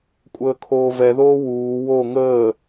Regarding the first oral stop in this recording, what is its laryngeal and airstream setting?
ejective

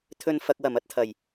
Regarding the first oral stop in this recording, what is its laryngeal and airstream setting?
aspirated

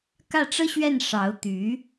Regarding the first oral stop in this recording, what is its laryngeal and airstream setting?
plain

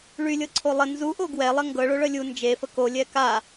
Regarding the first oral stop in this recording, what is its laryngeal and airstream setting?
click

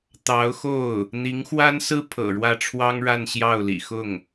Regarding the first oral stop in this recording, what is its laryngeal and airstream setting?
plain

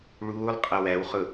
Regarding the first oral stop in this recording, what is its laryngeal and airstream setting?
ejective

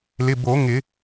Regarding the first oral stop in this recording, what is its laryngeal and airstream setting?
plain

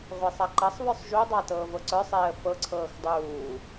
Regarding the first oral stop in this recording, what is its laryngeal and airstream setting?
click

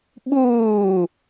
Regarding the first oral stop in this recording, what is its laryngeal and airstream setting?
implosive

